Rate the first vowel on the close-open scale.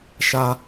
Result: open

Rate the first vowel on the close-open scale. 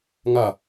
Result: open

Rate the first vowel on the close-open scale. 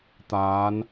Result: open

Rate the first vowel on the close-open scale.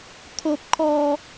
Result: mid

